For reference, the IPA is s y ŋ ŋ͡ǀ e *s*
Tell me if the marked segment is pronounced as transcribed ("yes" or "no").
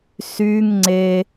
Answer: no